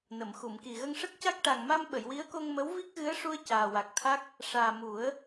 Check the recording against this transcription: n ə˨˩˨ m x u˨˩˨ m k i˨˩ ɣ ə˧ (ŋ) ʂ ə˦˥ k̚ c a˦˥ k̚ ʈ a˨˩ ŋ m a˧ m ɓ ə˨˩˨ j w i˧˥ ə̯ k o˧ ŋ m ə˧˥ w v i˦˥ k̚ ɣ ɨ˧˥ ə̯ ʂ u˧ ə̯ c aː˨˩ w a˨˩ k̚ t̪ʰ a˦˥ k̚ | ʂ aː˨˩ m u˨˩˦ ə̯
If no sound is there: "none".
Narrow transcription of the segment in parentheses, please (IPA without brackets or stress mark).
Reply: ŋ